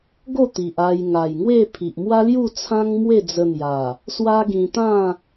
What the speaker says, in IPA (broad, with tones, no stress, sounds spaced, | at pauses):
ɡ o˥˧ t̪ i˨ ʔ a˧ j ŋ a˨˩ j ŋ w e˥˧ pʰ i˨ ʔ m w a˦ l j u˥˧ t͡sʰ ã˦ ŋ m w e˥˧ d͡z ə˧ n̪ j a˨˩ | s w a˦ ɡ ĩ˧ t̪ ã˥˧